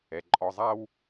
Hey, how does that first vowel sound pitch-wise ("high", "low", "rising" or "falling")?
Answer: low